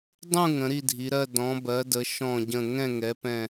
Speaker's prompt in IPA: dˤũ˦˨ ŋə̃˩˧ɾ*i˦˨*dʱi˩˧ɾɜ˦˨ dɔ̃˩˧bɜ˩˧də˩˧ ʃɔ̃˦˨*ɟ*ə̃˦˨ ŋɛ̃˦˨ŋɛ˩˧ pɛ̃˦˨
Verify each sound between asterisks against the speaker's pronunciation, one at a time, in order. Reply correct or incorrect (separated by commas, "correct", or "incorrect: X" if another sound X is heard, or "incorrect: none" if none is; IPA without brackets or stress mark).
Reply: correct, correct